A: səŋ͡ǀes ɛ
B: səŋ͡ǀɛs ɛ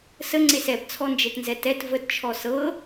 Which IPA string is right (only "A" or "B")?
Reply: A